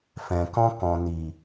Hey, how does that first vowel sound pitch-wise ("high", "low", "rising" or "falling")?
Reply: low